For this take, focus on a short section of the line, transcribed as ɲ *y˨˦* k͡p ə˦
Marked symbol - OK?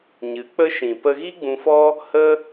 no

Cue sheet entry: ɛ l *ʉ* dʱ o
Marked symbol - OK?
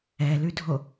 yes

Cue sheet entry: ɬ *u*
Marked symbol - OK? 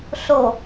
no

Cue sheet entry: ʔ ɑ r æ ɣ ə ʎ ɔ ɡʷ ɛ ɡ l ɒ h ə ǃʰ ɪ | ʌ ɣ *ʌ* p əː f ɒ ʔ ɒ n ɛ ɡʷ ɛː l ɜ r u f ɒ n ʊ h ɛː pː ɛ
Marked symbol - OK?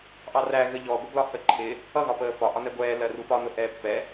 no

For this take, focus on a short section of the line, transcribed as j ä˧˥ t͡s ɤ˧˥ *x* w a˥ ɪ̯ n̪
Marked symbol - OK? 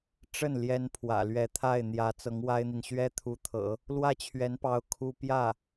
no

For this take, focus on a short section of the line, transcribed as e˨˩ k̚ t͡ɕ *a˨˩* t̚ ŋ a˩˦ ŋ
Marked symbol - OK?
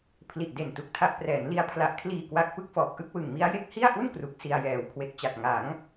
yes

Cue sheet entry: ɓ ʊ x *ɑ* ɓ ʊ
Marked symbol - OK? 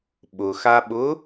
no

